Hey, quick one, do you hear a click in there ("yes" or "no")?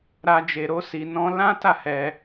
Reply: no